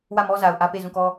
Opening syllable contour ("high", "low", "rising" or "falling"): falling